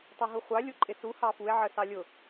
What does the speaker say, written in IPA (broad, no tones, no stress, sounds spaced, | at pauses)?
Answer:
tˤ ʌ ɦ u χʷ ɑ lʲ u ǃʼ ɪ s u h ɑ f u e̯ ʕ ə s ɑ lʲ ʊ